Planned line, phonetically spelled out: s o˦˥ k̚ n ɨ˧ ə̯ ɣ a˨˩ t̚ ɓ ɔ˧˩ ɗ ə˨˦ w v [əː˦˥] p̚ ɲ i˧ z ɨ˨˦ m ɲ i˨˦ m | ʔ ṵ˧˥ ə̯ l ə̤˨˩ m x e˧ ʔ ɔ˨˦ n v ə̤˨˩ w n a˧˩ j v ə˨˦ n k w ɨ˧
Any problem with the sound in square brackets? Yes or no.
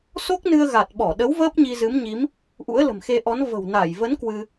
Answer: no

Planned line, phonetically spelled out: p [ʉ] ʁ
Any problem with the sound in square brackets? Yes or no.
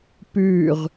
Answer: no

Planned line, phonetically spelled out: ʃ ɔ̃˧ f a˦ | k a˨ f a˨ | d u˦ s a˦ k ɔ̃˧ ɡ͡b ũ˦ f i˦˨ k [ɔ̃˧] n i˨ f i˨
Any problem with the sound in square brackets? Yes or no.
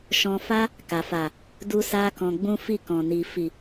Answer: yes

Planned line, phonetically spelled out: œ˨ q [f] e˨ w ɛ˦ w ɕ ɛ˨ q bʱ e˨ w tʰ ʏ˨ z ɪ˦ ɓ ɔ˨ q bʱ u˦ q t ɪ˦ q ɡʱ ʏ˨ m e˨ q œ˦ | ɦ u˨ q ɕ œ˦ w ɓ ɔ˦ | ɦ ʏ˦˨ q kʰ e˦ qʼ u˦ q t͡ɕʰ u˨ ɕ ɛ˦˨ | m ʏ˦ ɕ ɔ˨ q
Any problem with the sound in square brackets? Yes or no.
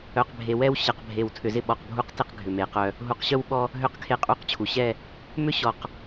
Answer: yes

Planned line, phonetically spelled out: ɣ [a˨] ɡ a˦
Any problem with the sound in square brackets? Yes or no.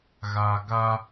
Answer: no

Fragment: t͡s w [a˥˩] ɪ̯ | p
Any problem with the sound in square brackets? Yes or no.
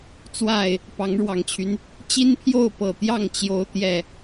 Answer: no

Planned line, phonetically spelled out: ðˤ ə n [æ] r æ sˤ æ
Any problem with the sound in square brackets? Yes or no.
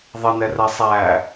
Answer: yes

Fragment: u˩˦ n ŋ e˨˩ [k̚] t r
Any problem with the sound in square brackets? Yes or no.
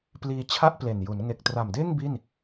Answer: no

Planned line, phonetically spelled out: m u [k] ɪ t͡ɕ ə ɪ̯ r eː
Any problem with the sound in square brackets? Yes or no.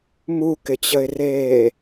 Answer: no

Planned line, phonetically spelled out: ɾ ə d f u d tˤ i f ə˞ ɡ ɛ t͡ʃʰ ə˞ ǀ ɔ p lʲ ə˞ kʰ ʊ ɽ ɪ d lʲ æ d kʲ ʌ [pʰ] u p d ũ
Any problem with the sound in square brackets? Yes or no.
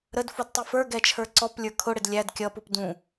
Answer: yes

